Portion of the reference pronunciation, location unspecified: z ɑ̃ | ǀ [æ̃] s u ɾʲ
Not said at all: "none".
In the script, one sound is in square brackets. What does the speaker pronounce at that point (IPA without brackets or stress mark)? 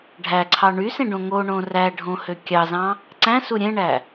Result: æ̃